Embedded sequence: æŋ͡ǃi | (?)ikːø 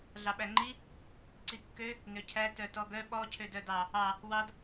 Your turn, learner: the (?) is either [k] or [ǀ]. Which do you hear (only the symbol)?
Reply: ǀ